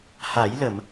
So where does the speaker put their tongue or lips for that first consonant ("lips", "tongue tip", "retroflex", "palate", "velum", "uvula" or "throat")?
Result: throat